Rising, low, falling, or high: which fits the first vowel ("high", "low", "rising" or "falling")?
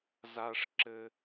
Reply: low